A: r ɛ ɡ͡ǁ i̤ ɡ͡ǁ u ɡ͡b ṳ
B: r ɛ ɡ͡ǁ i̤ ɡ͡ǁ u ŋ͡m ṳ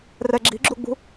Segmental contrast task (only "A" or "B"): A